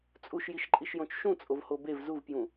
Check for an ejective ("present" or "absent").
present